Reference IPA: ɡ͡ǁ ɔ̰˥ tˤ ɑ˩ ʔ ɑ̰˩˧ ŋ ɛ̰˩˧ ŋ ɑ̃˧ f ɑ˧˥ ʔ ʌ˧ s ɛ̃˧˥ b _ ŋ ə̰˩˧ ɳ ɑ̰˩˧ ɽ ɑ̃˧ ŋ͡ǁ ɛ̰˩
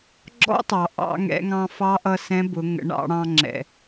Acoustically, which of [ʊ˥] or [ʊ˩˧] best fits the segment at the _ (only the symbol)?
ʊ˩˧